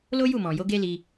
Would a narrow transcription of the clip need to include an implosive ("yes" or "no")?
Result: no